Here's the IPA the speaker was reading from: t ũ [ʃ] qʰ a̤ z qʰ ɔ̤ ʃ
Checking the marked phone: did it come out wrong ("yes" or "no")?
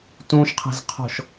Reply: no